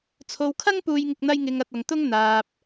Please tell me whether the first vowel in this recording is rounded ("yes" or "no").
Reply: yes